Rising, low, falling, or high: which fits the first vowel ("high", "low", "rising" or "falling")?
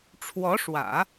rising